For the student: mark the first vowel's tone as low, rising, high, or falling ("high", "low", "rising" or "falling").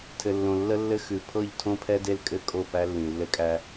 low